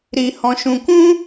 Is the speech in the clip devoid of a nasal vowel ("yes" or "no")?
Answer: no